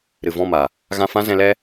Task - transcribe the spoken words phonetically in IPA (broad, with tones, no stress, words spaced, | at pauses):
ɾɨ˨vɔ̃˦˨ma˨ | ɣã˧fã˦zɛ̃˧lɛ˦